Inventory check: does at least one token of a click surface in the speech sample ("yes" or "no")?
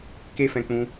no